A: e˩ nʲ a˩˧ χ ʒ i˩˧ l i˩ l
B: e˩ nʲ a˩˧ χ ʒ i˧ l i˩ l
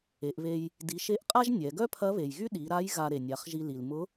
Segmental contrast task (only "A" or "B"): B